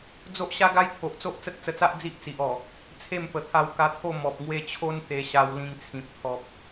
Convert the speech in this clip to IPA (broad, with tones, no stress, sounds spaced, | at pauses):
d͡z o˦ ʔ ɕ a˦ ɡ a˦ j t̪ʰ o˨ ʔ t͡s o˦ ʔ t͡s ə˦ t̚ t͡s ə˧ t͡s a˦ ʔ d͡z i˦ ʔ t͡s i˨ ʔ ɔ˨˩ | t͡sʰ e˥˧ m p ə˨˩ t̪ʰ a˧ w k a˧ t̪ʰ o˥˧ m ɔ˨ p̚ ŋ w e˧ t͡ɕʰ o˦ n t̪ e˧ ɕ a˧ w l ĩ˧ ŋ t͡sʰ ĩ˨ p̚ t̪ʰ ɔ˨ p̚